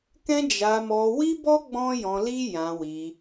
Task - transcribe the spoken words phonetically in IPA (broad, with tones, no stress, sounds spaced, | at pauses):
k ɛ̃˦ d͡ʒ a˧ m ɔ˧ w i˦ b ɔ˦ ɡ͡b ɔ̃˦ j ɔ̃˧ l i˦ j ã˧ w i˧